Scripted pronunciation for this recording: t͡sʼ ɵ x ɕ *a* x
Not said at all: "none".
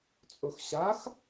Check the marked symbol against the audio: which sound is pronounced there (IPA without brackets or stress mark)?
a